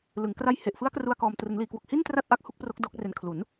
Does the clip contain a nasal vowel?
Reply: no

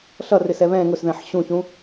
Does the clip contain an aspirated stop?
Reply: no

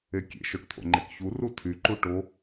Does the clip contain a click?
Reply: yes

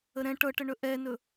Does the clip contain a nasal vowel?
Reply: yes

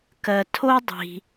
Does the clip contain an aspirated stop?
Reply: yes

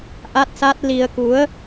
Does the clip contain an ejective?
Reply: no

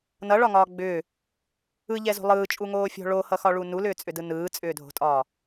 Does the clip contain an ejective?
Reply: yes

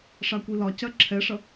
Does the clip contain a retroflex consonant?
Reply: yes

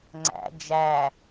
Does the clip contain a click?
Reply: yes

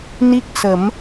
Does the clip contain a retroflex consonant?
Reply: no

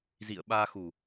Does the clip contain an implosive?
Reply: yes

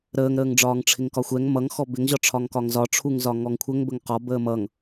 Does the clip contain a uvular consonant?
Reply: yes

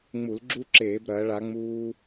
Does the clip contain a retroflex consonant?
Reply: yes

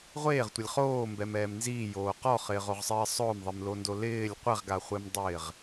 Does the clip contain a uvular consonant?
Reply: yes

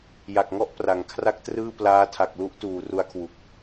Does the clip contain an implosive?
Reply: no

